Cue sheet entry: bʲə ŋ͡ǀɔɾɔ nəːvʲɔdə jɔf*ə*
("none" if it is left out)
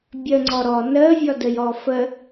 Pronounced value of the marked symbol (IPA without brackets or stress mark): ə